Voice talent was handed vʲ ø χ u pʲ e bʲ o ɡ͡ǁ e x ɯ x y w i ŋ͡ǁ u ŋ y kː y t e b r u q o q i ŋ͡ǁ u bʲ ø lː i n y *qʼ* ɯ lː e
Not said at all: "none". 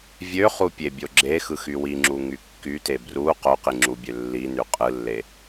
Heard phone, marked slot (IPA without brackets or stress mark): qʼ